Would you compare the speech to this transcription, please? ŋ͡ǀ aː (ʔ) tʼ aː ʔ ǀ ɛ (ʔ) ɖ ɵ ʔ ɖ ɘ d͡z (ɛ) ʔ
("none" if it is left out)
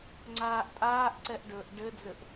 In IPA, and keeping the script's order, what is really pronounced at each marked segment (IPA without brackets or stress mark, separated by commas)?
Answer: ʔ, ʔ, ɘ